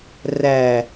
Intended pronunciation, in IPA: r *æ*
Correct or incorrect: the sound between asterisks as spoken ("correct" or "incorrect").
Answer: correct